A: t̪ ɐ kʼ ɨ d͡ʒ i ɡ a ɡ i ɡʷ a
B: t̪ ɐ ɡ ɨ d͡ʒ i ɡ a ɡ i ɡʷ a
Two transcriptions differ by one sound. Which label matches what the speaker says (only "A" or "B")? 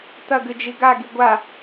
B